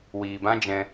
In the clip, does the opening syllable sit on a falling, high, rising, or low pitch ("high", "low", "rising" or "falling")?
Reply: low